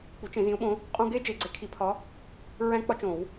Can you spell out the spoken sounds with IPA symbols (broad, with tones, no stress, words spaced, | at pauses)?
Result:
k͡pu˨˥t͡ʃẽ˨˩˦zĩ˨˥ʊ̯ɓõ˨˥ | qʼũ˥ ɡe˥ d͡ʒe˨˩˦ɡ͡ǀe˨˥ kʰi˨˩˦pʰɒ˨˥ | ɹæ̃˥k͡pɒ˥t͡ʃõ˨˩˦w